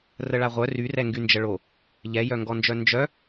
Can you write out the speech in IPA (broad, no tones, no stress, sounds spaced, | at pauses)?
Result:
r ə ɭ a ʁʷ œ r y r ɛ ŋ ɡ y n d͡ʒ ə ɭ o | ʎ ɛ j œ ŋ ɡ ɔ n d͡ʒ œ n d͡ʒ œ